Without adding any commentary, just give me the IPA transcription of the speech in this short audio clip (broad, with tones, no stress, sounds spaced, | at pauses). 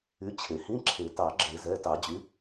y˩˥ t͡ɕʰ e˩ h ĩ˧˥˧ ǁʰ e˨˩˦ t ɑ˨˩˦ ɡ͡ǁ e˨˩˦ z ɛ˩˧˩ t ɑ˨˩˦ d͡ʑ y˩˥